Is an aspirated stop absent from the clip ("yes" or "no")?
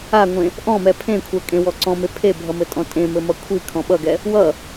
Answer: no